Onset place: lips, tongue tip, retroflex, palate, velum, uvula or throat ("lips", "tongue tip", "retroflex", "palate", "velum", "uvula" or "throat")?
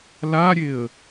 tongue tip